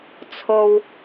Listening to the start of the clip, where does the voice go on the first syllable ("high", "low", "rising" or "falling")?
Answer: low